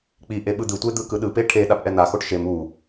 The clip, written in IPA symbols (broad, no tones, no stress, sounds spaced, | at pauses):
k͡p i ʔ e ɓ ɯ d̪ ɯ tʷ e d̪ ɯ k ɯ ɗ ɯ p e ʈʰ e ɗ a p ʔ ɛ n̪ a x o ʈ ʃ e m u